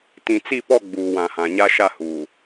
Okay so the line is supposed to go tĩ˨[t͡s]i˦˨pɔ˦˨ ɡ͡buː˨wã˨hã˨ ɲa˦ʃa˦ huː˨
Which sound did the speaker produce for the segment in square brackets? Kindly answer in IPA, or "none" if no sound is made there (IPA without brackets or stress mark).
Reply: t͡s